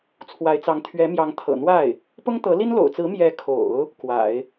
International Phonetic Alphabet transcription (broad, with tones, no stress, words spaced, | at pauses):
t͡sʰwa˧˥ɪ̯t͡sɑ˧˥ŋ t̪ʰɥɛ˧˥mjɑ˧˥ŋt̪ʰɤ̰˨˩n̪wa˥˩ɪ̯ | pʊ˥ŋt̪ɤ˧˥li˥n lo̰˨˩ʊ̯t͡sɹ̩˧˥ mjɛ˧˥kʰo̰˨˩˦ʊ̯ | kwa̰˨˩˦ɪ̯